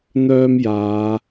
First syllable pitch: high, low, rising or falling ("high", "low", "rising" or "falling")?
high